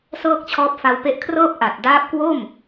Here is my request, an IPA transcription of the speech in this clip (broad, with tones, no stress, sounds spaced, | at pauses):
s ɤː˥˩ k̚ t͡ɕʰ ɔː˦˥ p̚ f a˧ w p e˦˥ ʔ kʰ r ɤː˥˩ p̚ ʔ a˨˩ t̚ d aː˦˥ p̚ k w o˥˩ m